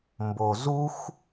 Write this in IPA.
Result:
m b o z u x

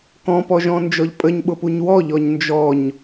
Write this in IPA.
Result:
k ɔ̃ p ɔ ʒ ɔ̃ n d͡ʒ ɔ ʎ pʼ ə ɲ ɓ ʊ p u ɲ w ɔ ʎ ɔ ɲ n d͡ʒ ɔ ɲ

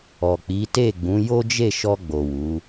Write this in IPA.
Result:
ɔ˨ k͡p i˨˦ t e˦˨ ɡ͡b ũ˨˦ j o˦ d͡ʒ e˦˨ ʃ ɔ˧ ɡ͡b o˨ w u˨˦

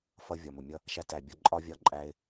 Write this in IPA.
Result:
f ʌ˦ vʲ ɒ˨ m ʊ˨ mʲ ʌ˦ | ʃ æ˧ t æ˨ bʲ ɒ˧ ǃʼ ɒ˦ vʲ ɒ˦˨ ǃʼ æ˧ ɪ̯

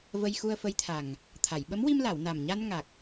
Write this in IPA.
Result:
v ə˧ j x u˧ ə̯ f ə˧˥ j t̪ʰ a˨˩ ŋ | t̪ʰ a˨˩˨ j ɓ ə˧˥ m w i˧ m l a˨˩˨ w n a˨˩ m ɲ a˧ n ŋ a˨˩ k̚

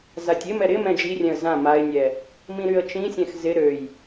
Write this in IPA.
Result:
z a tʲ ɪ m ɛ ɾ ɪ m ɛ̃ d͡ʒ i rʲ ɛ̃ ə̯ z ã m a ɪ̯ nʲ ɛ | m ĩ ɾ y ə̯ t͡ʃ ĩ sʲ ɛ̃ x z ɪ ɾ ø j

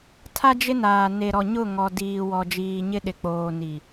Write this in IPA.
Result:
tʰ a˦ d͡ʒ ɪ˦ n aː˨ n e˨ ɾ ɔ˨ ɲ ʊ˦˨ ŋ ɔ˦ d iː˦ w ɔ˦ d͡ʒ iː˦ ɲ ɪ˦˨ ɗ ɪ˨ k͡p oː˨ n i˨

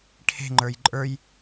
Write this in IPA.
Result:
ʈʰ e̤ ŋ͡ǃ ə˞ j ǃʼ ə˞ j

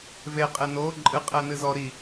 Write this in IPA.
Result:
v e qʼ e n o ǃʼ ɨ qʼ ɛ n ɨ z ɔ ɾ i

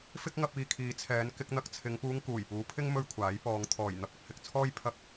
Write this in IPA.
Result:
f ɪ˥ k̚ ŋ ɐ˧ p̚ iː˨ kʰ iː˨˧ t͡sʰ ɛː˨˧ n k ɪ˧ k̚ n̪ ɐ˧ k̚ t͡sʰ ɪ˨˧ ŋ p uː˧ ŋ k uː˨˩ j p uː˨˧ pʰ ɪ˥ ŋ m ɵ˥ ɥ kʷʰ aː˨˥ j p ɔː˨˧ ŋ t̪ʰ ɔː˨˩ j n̪ ɐ˧ p̚ ɐ˧ k̚ h ɪ˧ k̚ t͡sʰ ɔː˥ j pʰ ɐ˥ k̚

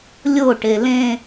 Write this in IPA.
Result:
lʲ o ʈ e l ẽ

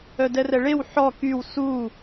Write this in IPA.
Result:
œ d ɛ r ɛ ɭ e w ħ ɔ k y w s u

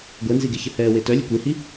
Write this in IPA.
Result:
ɡʷ ɛ n z i ɡ e ç ə h ɛː w e t œ lʲ ɘ kʷ e h i

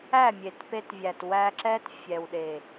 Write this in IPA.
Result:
æ˦˨ mʲ e˨ t p e˧ t vʲ æ˨ t w æ˧ ǁ ɛ˦ t fʲ ɛ˨ w ɗ e˨

